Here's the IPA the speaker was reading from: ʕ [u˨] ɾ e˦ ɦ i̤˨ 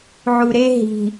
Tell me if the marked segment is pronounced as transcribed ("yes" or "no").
yes